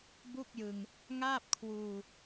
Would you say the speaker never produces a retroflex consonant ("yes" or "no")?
yes